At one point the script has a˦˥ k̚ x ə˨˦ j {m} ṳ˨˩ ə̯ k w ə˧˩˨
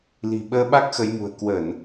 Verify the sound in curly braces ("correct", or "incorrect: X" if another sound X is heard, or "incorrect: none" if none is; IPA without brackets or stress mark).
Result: correct